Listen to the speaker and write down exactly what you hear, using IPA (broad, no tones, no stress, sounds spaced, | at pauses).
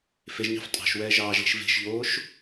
f e ʒ ɲ ɑ̤ f tʼ ɑ̤ ʃ w ɛː ʒ ɑː ʒ l e̤ ʃ v e̤ ʃ ʎ oː ʃ